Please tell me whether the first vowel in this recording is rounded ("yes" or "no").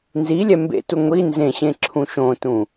no